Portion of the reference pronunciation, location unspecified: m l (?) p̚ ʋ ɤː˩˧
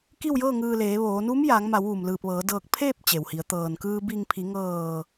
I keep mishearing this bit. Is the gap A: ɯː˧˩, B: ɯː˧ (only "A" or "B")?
A